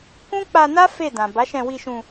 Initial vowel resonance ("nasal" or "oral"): nasal